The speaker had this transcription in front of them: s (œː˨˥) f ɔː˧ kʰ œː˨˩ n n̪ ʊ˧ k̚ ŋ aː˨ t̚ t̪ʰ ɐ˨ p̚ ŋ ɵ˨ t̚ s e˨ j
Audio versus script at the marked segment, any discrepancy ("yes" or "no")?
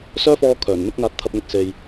yes